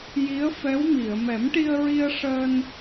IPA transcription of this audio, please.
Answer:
j i˧˥ ə̯ f ɛ˧˥ w m i˨˩˨ ə̯ m ɛ˨˩˦ m ʈ i˧ ə̯ ɹ i˧ ə̯ ʂ əː˧ n

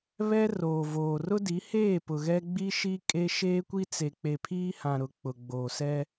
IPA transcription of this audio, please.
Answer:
β ɛ˦ r oː˨ v oː˨ r ʊ˦ d i˨˦ h eː˦˨ p ʊ˨ ɣ ɛ˦ ɡ͡b i˦ ʃ i˦ kʼ e˦ ʃ eː˦ kʷ i˦ t͡s e˨ k͡p e˨ pʰ iː˦ h ã˨ ɾ ʊ˨ k͡p ʊ˨ ɡ͡b oː˨ s ɛ˦

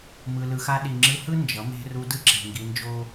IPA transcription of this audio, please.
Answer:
m ɯ˧ l ɯ˧ x a˦ ɗ i˨ ŋ͡ǁ ɯ˧ h ɯ˦ n d͡ʒ ʌ˨˦ m e̤˦ r u˧ d ɯ˦ ǁ e̤˨ ŋ ɡ i˧ n d͡ʒ o˦

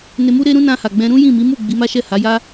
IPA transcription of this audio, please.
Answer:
n e˧ m u˦ ɾ e˦ ɾ ũ˦ n ã˧ h a˨ ɡ͡b ɛ̃˧ ɾ ũ˦ j ĩ˦˨ m i˨˦ m u˦˨ ɡ͡b i˨˦ m a˦ ʃ ɛ˦˨ h a˨˦ j a˦

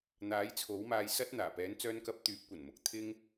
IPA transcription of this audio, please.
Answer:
n̪ aː˨˥ j t͡sʰ o˨˥ w m aː˧ j s ɐ˥ t̚ n̪ aː˨˩ p ɛː˨˥ n t͡s œː˧ n k ɐ˧ p̚ t̪ yː˨˥ p̚ kʷ ɐ˨˩ n m ʊ˨˥ k̚ t̪ʰ ɪ˥ ŋ

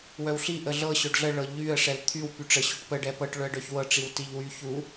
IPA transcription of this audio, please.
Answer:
w œ w ɬ i ʔ ə ɮ ɤ ɕ œ ɖ ɮ ə ɭ ɤ ʎ y ə̯ ʂ ɛ l t̪ʰ y w p y ʈ͡ʂ ə ɕ y ʈ p ə ɖ ɛ p ɤ ʈ ɭ œ ə̯ ɖ œ ç w ɤ ʈ͡ʂ i w t i ʎ w y ç u

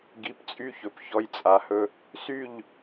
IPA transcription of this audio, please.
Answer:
ɡ i˨˥ p t͡sʼ y˦ ç ɵ˨˥ p ç ɔ˦ j t͡sʼ a˨˥ h ɵ˦ | s y˥˨ ʎ

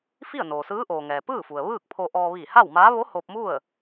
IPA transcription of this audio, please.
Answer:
f i˥˨ ə̯ n oː˩ s ɯː˧˥ ʔ oː˩ ŋ ɛː˩ p ɯː˥˨ f u˩ ə̯ ʋ ɯː˥˨ k̚ pʰ o˧ ʔ ɔː˧ ʋ iː˧˩ h a˥˨ w m aː˧˥ ʋ o˧˥ h o˧ p̚ m u˥˨ ə̯

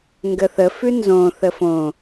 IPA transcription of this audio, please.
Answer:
ŋ ɡ ə θ ə f ʉ n z õ θ ə f õ

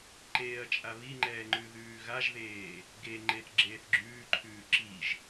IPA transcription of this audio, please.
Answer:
ǃ eː ɐ̯ t͡ʃʼ a β i ŋ͡ǃ ɛː ŋ͡ǃ ʉ ð ʉː ɣ a ʒ ð eː | ɡ e ŋ͡ǃ e θ ɡ͡ǁ eː θ ɡ͡ǁ ʉː ǃʰ ʉː ǁ i ʒ

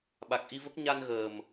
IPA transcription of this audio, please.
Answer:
ɓ a˨˩ k̚ ʔ i˧ v ə˦˥ k̚ ɲ a˧ n ɣ əː˨˩ m

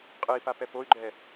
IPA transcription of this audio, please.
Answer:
qʼ ɯ i̯ p a p ɛ p o y̯ ɡ͡ǃ ɛ

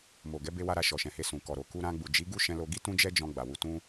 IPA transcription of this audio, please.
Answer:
m o˨ ɡ ɛ˨˦ b e˧ w a˧ ɾ a˧ ʃ ɔ˨ ʃ ɛ̃˨ h e˧ s ũ˨ k ɔ˨ ɾ o˨ k u˧ ɾ ã˧ ɡ͡b u˨ d͡ʒ i˨˦ ɡ u˦ ʃ ɛ̃˧ l o˧ ɡ i˦ t ũ˦ d͡ʒ ɛ˦ d͡ʒ ɔ̃˧ ɡ͡b a˨ w u˧ t ũ˦

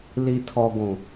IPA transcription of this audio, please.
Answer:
l i˨ tʰ ɔ˨ ɡʷ ũ˨

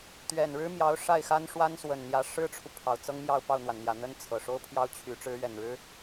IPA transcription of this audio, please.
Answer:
t̪ ɥ ɛ˨˩ n ɻ ɻ̩˥ m j ɑ˧˥ ʊ̯ ʂ a˥˩ ɪ̯ x a˥ n ʂ w a˥ n s w ə˨˩ n n̪ j ä˧˥ ʂ ɻ̩˥ ʈ͡ʂʰ u˨ pʰ ɑ˨˩ ʊ̯ t͡s ɤ˥ ŋ m j ɑ˥˧ ʊ̯ p ɑ˥˩ ʊ̯ n̪ w a˩ n n̪ j ä˨˩ n̪ ə˥ n t͡sʰ ɤ˨˩ ʂ o˥ ʊ̯ pʰ j ɑ˥ ʊ̯ t͡ɕʰ y˧˥ ʈ͡ʂ ɻ̩˧˥ ɥ ɛ˨˩ n ɻ ɻ̩˥

